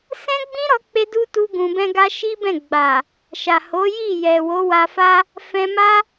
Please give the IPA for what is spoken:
sɛ̃˦ɡ͡bĩ˦ɾɔ˧k͡pe˧ du˦ tu˦ɡũ˧bɛ̃˦ɡa˦ ʃi˦bɛ̃˦˨ ɡ͡ba˨ | ʃa˨ho˨˦ji˦˨ jɛ˨wo˨˦wa˧fa˦ | fɛ̃˧ma˦

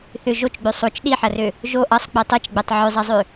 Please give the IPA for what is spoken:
θʏ ʒot͡ʃɡ͡bø sˤot͡ʃ ɗiħɐrø | ʒo ʔɐsˤk͡pi tˤit͡ʃɡ͡bɛtˤ ʕʏzˤɐzˤø

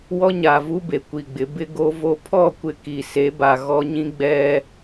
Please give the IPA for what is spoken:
wɔ˦ɲa˨vu˦be˨ kʷi˨ɡ͡bɪ˨˦bɪ˦ ɡo˦vo˦ pʰɔ˦˨kʷɪ˨ ki˨se˨˦ba˨ ɣɔ˦ ɲĩ˦ɡ͡bɛ˦

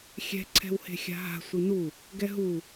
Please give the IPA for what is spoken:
xʲɛ̤ǀʰɛ̤whe̤ xʲa̤ɦa̤ sʷinu | ɡɛɦu

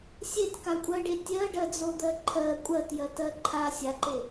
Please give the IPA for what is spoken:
sʲetkakʷʼɜɖe tʲɜɖɜd͡zod̪ɜ ǃʰɜ kʷʼɜtjɜtɜ ǃʰa sʲaǃe

